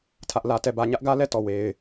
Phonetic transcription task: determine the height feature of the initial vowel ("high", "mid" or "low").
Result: low